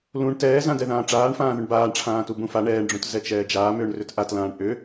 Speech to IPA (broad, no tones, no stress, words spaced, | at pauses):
lũɳ tɛːzãdɛðãː ʈ͡ʂaːɳfãːðʏɳ baːɳʈ͡ʂʰãː tubũfa ɳɛːɳɖ͡ʐũt zɛt͡ʃɛːd͡ʒaːmʏːɳ rʏtʔatlãːɳ ʔʏ